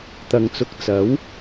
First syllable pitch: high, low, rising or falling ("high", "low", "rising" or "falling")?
low